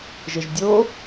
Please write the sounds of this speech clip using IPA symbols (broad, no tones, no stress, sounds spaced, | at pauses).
ʒ ɪ ʒ dʲ o